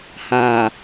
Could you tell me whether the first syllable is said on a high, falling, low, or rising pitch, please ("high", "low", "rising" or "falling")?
low